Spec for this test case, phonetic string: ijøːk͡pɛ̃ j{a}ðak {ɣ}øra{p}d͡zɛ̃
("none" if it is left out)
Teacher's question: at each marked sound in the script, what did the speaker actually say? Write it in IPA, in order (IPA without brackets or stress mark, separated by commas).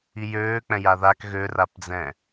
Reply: a, ɣ, p